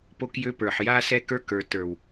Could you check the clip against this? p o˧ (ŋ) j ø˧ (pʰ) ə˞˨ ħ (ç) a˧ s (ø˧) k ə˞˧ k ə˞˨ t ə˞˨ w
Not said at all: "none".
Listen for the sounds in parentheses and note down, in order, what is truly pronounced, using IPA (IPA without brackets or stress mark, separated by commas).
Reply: k, p, j, ɛ˧